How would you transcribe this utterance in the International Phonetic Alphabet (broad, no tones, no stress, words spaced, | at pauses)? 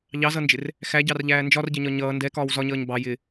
ʎɑzʌnd͡ʒɪr | xæɟɑrʎæː nd͡ʒɒrɟɜɲɒ ɲʌː ndɛkɒːw zɒɲʌːɲ bɑ jɪ